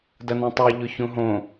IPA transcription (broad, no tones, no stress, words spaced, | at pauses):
dɐnɛ̃tˤɛ ʎʊçũɦõ